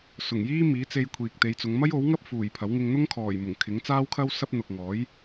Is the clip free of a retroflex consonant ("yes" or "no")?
yes